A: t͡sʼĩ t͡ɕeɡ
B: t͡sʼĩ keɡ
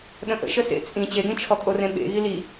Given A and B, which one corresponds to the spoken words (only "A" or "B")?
A